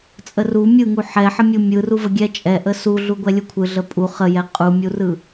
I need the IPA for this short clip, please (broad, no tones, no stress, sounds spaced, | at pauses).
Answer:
t͡sʼ ə r u mʲ ɯ ŋ u ħ ɛ ħ ə mʲ u mʲ ɯ r u v ə ɡʲ ɛ t͡ʃʼ ɛ ʔ ə s u ɮ u ɡʷ ɛ lʲ u kʷʰ ɯ ɮ ə pʼ u χ ə j ɛ qʼ u mʲ u r ɯ